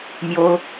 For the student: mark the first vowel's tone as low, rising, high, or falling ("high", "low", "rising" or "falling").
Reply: high